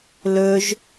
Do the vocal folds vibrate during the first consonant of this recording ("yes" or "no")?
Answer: yes